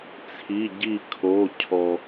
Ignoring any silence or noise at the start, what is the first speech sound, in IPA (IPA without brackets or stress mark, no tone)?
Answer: t͡sʰ